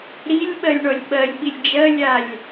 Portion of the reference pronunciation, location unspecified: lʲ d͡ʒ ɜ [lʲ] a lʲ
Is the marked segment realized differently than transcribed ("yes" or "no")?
no